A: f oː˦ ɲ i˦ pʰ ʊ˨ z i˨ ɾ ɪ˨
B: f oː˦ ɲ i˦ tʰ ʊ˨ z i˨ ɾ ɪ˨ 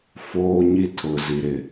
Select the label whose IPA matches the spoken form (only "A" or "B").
B